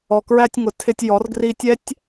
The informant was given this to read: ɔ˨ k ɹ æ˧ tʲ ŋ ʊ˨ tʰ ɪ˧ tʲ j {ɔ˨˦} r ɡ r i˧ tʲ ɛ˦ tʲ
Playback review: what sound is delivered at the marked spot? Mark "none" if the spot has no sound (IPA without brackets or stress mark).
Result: ɔ˨˦